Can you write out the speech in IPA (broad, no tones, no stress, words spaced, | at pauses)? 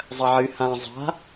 zˤɐʕɨ hã zˤa̤